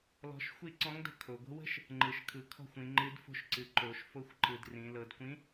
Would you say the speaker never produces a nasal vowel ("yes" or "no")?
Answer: no